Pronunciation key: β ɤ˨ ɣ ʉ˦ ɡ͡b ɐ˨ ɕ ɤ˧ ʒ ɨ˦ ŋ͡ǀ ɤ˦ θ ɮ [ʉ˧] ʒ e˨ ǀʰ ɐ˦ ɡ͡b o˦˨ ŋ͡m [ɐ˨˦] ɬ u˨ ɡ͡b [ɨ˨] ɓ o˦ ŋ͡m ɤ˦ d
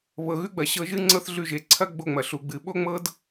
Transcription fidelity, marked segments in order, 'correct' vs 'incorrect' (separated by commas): correct, incorrect, correct